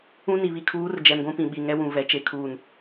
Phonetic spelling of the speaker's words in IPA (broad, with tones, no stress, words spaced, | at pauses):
ũ˦ni˨ βi˨kʰuː˨˦r d͡ʒɛ˨mɡʷũ˦ pĩ˨ɓi˨ŋɛ˦wũ˨ vɛ˨ t͡ʃe˦ kʰuː˦˨n